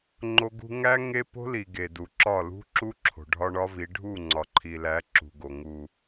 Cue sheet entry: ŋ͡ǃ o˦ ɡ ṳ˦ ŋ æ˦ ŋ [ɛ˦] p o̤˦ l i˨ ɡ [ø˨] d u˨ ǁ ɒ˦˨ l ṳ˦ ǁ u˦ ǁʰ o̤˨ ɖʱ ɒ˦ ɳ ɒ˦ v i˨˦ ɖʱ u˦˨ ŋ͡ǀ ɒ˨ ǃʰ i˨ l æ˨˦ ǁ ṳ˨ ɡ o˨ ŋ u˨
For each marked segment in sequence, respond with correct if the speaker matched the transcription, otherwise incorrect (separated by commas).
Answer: incorrect, incorrect